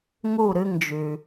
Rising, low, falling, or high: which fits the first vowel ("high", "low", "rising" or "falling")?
falling